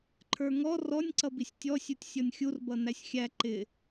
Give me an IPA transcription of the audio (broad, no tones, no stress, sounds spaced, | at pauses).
ǃʰ ə˞ ŋ ɔ r ɔ nʲ ǀ ʌ b i sʲ tʲ ɔ sʲ u tʲ sʲ ɔ nʲ xʲ u r b ʌ n æ sʲ xʲ æ ǃ ɪ